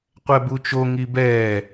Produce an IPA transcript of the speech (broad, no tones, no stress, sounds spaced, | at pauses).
qʷ ɛ b u t͡ʃ o ŋ i b ɛː